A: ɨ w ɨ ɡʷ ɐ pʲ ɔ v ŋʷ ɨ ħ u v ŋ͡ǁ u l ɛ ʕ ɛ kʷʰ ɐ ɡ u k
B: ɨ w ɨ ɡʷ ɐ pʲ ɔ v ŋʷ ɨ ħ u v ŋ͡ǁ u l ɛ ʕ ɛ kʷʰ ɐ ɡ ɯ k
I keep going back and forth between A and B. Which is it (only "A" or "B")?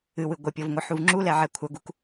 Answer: A